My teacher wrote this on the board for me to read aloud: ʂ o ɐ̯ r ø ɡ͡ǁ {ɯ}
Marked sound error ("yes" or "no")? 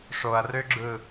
no